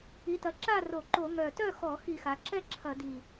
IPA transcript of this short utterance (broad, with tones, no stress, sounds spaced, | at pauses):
i˩˧ t ɐ˩˧ ǁ a˥˨ r o˧˩˧ ǃ o˧˩˧ ŋ œ˨˩ t œ˥˨ x ɔ˧˩˧ x i˧˩˧ x a˩˧ ǁ ɛ˥˨ ǁʰ ɐ˧˩˧ d i˨˩